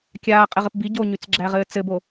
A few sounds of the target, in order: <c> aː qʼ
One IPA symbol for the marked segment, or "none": kʲ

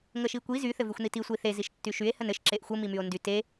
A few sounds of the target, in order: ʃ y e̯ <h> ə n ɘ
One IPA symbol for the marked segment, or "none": h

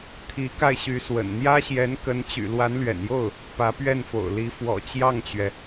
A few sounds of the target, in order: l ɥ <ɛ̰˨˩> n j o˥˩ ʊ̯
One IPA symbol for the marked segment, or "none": ɛ̰˨˩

